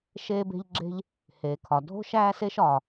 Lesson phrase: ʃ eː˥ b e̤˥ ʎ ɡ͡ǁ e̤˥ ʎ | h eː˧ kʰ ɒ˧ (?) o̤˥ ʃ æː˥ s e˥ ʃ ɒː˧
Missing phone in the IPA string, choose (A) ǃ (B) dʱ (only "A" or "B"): B